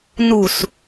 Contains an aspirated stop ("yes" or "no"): no